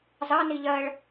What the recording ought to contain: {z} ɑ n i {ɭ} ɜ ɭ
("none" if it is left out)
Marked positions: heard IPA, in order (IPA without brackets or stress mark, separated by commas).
z, ʎ